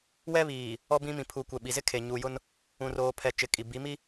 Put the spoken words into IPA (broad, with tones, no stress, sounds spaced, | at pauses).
w ɛ˦ β iː˨ | ɔ˦ b ĩ˦ m ĩ˨ pʰ u˨ kʷ ɛ˨ ɓ i˨ z ɪ˦ kʰ e˨ ɲ uː˨ j ʊ˦ n | ũ˨ r oː˨ pʰ ɛ˨ t͡ʃ ɪ˨˦ kʼ i˨ b i˨˦ m i˦